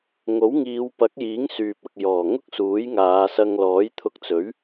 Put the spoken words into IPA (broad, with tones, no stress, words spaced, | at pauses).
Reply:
ŋo˨˥wŋiː˨˧wpɐ˨˥k̚jiː˨˥ŋ syː˨p̚ ɐ˨k̚jɔː˨˩ŋʊ˥k̚suː˨˥j ŋaː˨˧sɐ˧ŋ lɔː˨˥jt̪ʰʊ˧k̚t͡sɵ˨˥ɥ